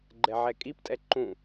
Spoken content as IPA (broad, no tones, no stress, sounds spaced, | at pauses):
ɡ͡ǃ ɛ ʕ ɛ kʼ i p tʼ ɛ ǃ ũ